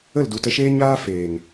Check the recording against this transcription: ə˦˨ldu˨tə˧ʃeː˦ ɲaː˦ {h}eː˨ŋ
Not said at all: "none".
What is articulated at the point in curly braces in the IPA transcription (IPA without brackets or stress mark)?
f